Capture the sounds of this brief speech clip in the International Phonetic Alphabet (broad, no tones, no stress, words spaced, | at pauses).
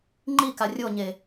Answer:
ŋ͡ǃika rʲoɲe